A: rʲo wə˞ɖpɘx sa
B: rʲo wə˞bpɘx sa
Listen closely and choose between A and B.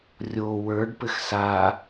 A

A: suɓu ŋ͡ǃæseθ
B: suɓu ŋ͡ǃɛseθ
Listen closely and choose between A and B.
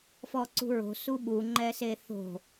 B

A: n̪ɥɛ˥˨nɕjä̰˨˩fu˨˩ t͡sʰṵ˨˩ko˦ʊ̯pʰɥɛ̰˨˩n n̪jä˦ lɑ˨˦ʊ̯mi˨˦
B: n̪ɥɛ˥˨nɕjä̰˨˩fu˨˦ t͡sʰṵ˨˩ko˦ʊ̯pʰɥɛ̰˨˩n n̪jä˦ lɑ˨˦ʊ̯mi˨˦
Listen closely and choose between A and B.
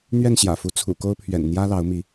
B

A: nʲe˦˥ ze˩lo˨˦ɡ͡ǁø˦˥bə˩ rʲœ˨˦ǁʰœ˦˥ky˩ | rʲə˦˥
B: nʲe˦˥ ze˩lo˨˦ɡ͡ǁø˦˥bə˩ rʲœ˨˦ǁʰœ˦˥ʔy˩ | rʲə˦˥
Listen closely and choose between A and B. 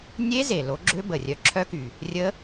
A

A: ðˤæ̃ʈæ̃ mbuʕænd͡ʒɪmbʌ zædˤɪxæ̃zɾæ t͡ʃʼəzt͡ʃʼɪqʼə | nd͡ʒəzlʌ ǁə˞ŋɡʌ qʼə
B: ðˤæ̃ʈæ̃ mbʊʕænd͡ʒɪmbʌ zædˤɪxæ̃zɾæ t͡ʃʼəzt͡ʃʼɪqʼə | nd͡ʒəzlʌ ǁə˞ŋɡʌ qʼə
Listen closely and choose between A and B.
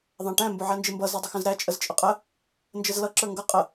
B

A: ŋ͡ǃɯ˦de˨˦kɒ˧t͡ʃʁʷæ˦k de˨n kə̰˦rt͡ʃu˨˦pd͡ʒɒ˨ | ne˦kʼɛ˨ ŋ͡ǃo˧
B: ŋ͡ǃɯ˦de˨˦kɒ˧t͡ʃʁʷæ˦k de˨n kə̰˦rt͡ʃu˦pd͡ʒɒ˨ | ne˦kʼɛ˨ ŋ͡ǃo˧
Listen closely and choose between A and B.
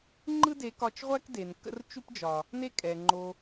B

